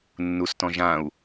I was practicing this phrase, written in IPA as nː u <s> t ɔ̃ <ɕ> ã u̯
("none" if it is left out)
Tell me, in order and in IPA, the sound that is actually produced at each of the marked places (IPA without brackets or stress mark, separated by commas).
s, ʒ